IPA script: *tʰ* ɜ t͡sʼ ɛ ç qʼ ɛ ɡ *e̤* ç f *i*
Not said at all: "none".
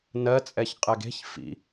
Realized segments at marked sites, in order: n, e̤, ḭ

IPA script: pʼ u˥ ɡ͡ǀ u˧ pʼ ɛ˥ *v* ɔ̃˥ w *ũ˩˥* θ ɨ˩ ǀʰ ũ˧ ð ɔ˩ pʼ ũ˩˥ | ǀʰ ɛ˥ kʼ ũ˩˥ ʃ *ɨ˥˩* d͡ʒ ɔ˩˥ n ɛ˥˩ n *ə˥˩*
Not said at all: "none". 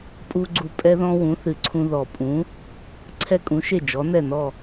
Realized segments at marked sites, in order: ð, ũ˩˥, e˥˩, ɔ˥˩

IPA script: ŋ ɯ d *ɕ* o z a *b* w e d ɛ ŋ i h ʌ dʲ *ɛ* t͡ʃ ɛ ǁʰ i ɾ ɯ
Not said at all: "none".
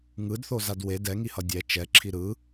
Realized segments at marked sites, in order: θ, d, ɛ

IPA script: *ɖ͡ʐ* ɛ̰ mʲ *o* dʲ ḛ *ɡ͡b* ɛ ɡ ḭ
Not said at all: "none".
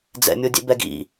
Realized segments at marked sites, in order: d͡z, o, b

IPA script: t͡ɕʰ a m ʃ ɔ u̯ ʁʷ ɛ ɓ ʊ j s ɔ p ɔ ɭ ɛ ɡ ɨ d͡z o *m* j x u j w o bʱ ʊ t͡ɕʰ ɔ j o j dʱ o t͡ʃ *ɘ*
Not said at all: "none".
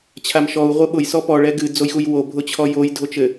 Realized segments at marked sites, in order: none, ɘ

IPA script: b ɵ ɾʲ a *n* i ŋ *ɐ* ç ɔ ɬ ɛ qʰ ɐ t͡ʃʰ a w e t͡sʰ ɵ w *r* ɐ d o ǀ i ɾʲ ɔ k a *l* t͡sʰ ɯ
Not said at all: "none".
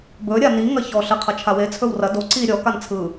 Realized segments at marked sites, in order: n, ɐ, r, n

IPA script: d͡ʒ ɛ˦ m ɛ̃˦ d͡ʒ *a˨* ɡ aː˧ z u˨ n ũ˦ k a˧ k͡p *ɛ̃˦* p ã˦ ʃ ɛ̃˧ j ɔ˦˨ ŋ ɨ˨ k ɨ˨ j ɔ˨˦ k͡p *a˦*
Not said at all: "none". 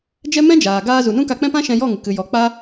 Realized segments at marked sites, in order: aː˨, ɛ̃˦, a˦

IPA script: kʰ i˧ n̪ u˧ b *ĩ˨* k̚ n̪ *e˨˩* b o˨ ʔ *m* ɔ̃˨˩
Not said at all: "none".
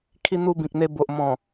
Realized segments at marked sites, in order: ĩ˨, e˧, m

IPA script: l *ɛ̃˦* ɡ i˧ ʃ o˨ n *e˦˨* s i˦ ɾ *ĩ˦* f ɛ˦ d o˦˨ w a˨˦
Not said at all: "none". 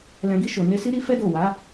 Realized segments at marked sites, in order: ɛ̃˨, e˧, i˦

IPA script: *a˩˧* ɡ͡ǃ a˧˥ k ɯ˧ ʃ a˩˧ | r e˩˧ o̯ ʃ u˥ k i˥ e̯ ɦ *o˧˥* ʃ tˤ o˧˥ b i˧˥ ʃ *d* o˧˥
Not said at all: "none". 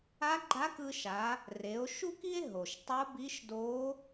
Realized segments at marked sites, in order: a˧˥, o˩, d

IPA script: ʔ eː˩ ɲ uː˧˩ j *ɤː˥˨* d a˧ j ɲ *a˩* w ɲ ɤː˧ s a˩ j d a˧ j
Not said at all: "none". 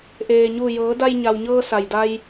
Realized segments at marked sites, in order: ɤː˩˧, a˩

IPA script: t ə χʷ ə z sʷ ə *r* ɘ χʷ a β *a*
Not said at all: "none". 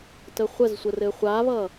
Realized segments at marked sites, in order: r, ʌ

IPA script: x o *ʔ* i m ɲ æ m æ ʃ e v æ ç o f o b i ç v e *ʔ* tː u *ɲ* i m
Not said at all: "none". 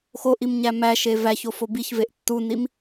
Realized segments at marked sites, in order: ʔ, ʔ, n

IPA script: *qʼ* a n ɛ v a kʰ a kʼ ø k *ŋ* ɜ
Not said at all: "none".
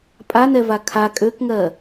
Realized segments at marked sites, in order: pʼ, ŋ

